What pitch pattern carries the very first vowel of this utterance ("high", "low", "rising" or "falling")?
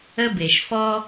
high